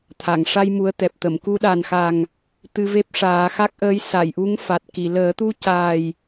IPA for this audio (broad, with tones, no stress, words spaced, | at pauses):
t̪ʰa˨˩˨ŋʂa˧j mu˧˥ə̯t̪ɛ˨˩p̚t̪ə˨˩˨m ku˧ɗa˨˩nxa˨˩ŋ | t̪ɨ˧ve˦˥p̚ ʂaː˨˩˦xa˦˥k̚ʔəː˧˥j sa˨˩˨jʔu˧˥ŋ fa˨˩t̚ki˨˩˨ ləː˨˩˦t̪u˧ caː˨˩j